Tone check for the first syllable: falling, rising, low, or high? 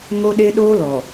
high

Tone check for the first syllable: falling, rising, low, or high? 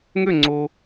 falling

